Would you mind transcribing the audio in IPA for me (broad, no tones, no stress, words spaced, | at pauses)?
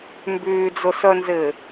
mbyːd͡zʊsœnzɪː